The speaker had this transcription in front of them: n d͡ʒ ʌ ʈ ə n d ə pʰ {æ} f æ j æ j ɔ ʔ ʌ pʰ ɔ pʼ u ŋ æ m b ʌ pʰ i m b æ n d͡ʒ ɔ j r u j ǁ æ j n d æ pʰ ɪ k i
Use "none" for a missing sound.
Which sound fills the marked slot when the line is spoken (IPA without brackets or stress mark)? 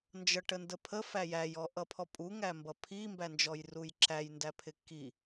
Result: ə